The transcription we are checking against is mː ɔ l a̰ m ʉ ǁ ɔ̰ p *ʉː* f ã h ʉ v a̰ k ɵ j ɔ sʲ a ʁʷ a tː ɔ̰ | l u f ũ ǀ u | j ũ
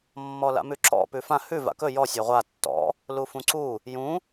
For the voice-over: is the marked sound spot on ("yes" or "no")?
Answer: no